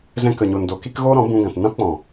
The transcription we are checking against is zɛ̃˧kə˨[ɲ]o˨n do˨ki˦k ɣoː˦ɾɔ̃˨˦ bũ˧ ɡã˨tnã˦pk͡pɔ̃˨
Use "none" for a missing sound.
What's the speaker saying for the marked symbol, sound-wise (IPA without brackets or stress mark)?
ɲ